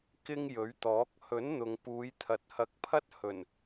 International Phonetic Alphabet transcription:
k ɪ˥ ŋ j ɵ˨˥ ɥ t̪ ɔː˨˥ k̚ h ɵ˨˥ n n̪ ʊ˨ ŋ p uː˨˧ j t̪ʰ ɐ˨ t̚ h ɐ˨˥ k̚ pʰ ɐ˥ t̚ h ɵ˨˩ n

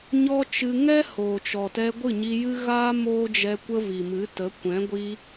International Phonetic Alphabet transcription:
ɲ ɔ˦ t͡ʃ ɨ˧ ŋ ɛ˦ h oː˨ t͡ʃ ɔ˨ t ɛ˧ ɡʷ ɨ˦˨ ɲ i˧ j ɨ˦ ɣ aː˦ m oː˦ d͡ʒ ɛ˧ kʷ ə˦ v i˨ m ɨ˨˦ t ə˨˦ kʷ ɛ̃˨˦ ɡʷ i˧

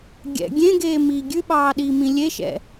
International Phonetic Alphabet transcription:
ɡʲ ɛ̰ ɡʲ ẽ ɡ eː m iː ɡʲ ʉ ɓ ɑː ɗ iː m ĩ lʲ e ʃ ɛ̰

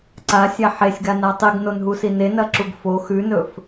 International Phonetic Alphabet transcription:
ǀ a sʲ a ħ e sʲ ɡ a n a tˤ i ɡ n o n ɦ u s i n e n ɐ ǁ u ɡ f o x ʉ n ɵ f

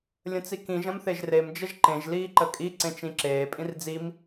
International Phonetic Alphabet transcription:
lʲ ə̃ t͡s i k ĩ ʒ ɐ̃ m θ e ʒ r e m d͡ʒ ə ʒ ǃ ẽ ʒ l iː ǃ ə kʼ i ǀ ẽ t͡ʃ ĩ ǁ eː pʼ ĩ r d͡z i m

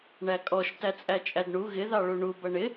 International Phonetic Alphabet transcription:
ɳ æ kʼ ɔ ʃ t æ t͡sʼ æ t͡ʃʼ æ d ɳ u ɣ ɪ ð ɑ ɭ u ɳ u b ʌ ɳ ɪ

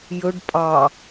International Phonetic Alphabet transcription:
j ɵ ɖ pʼ ɑ

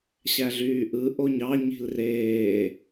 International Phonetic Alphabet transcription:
ɕ æ ɮ yː ʔ ɯ ʔ o ɲ ɑ ɲ i̤ l r eː

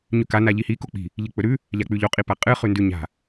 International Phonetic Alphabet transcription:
ɲ ʉ k a n a ʎ i h i k o k͡p i̤ | ʎ ɨ k͡p ɵ ɾ ʉ | ʎ a k͡p ʉ ʎ o qʼ i p a qʼ ɨ χ ʉ n d ʉ ɲ a̤

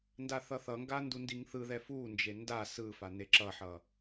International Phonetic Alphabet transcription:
n d a θ ʌ θ ʌ ŋ ɡ a n d u n d i ŋ θ ɯ ð ɛ f u n d͡ʒ e n d a s ɯ f a n e ǁ ʌ ħ ʌ

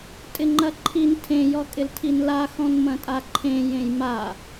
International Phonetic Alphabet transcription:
tʼ ɪ ŋ͡ǃ ɐ ǃʰ i n tʰ ẽ j ɔ kʼ ɪ l tʰ i n l a x ɔ̃ n m ɐ̃ tʼ a ǃʰ ẽ j ẽ j m a

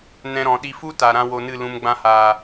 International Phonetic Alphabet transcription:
n ɛ̃˧ ɾ ɔ̃˨ ɗ i˧ f u˦ t a˨ ɾ ã˦ w o˧ n ɨ˦˨ l ũ˧ m ɡ͡b ã˧ h aː˨

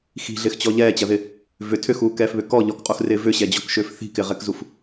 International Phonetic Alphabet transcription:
x i̤ ɮ ɪː x t͡ɕ ɔ ʎ ɛː t͡ɕ ɐ ð ɪ | v ʏ tʰ ʏ x uː k ɛː f β ʏ k ɔ ʎ ɔ k qʼ u x r ɪː v ʏ ɕ ɛ d͡ʑ ɔ k ʃ ʏː f θ i̤ k ɪ ʁ ɛ k z u f

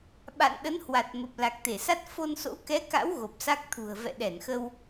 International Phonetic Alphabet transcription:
ɓ a̰˧˨ n ɗ ə˨˦ n h w a˨˩ t̚ m ə˨˩ p̚ l a˨˩ k̚ t̪ e˧˩ s a˦˥ t̚ f o˧ n s o̰˧˥ k ɛ˨˦ k a̰˧˥ w ɣ o˨˩ p̚ s a˦˥ k̚ t̪ʰ ṳ˨˩ ə̯ v ɛ̰˧˨ ɗ ɛ˧˩ n x ə˧ w

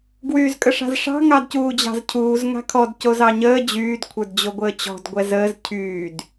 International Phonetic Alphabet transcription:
ɡ w yː z kʼ ə ʂ a̤ z ʂ ɑ̤ ŋ ɑ d c uː d͡ʑ ɑ̤ z cʰ uː z ŋ a̤ kʰ ɔ d c o z ɑ ɲ əː d͡ʑ yː d kʷʰ ə˞ d d͡ʑ o ɡʷ əː t͡ɕ ɔ̤ d ɡʷ ɛ z əː z cʰ yː d

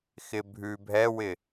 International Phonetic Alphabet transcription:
x ɪ bʱ ʉ bʱ ɛ w ɪ

